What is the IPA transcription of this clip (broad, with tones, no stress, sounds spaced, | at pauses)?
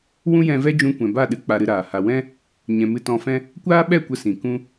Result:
w ũ˦ j ɛ̃˧ v ɛ˦ d͡ʒ ũ˧ kʷ ɛ̃˨ b a˦˨ ɗ ɨ˧ k͡p a˧ ɾ ɨ˧ ɾ aː˨ h a˨ w ɛ̃˦ | ɲ ɛ̃˨ m ɨ˧ t ɔ̃˧ f ɛ̃˦ | kʷ aː˦ ɓ ɛ˦˨ kʷ ə˦ s ĩ˨ k ũ˦